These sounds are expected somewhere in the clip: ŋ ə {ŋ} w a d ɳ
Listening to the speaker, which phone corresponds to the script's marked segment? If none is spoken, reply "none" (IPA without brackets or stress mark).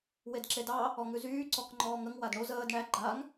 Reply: ŋ